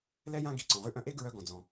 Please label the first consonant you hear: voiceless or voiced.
voiced